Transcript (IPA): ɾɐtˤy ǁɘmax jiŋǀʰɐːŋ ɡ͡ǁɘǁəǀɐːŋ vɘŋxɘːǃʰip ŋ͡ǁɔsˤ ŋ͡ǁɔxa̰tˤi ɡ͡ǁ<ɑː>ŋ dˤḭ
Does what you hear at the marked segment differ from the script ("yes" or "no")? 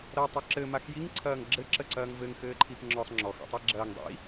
yes